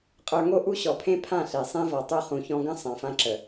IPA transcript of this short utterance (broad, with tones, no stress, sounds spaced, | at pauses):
qʼ ə˞˧ ŋ o˦ ʔ u˦ ɕ ɔ˨ pʰ ẽ˦ pʰ ã˦˨ ɬ e˨ sˤ ẽ˦ v ɔ˨ tˤ u˧ χ ũ˨ ç ɔ̃˧ ɡ ə̃˦ sˤ ã˨ f ã˧ ǁ ə˨